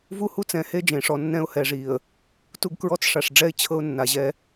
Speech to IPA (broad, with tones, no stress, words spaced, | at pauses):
vu˦hu˦t͡sɛ̃˨ he˦d͡ʒẽ˨ʂɔ˨ nːɛ̃˦ʊ̯hɛ˨ʐi˨ə̯ | tu˦ɡkɹɔ˦t͡sʂa˨ʂɖ͡ʐɛ˦ɪ̯ t͡ɕʰɤ˦ʊ̯nːa˨ʑɛ˦